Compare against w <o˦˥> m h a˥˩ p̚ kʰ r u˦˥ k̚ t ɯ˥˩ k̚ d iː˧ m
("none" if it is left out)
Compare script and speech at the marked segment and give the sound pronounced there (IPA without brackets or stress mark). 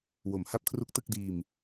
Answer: o˨˩